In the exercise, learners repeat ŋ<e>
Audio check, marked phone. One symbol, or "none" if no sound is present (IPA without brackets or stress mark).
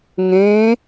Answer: ẽ